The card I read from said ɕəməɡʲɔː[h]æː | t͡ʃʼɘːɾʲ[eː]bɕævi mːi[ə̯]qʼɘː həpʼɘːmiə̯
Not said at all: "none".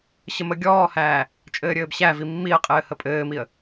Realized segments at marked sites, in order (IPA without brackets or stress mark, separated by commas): h, ɘː, ə̯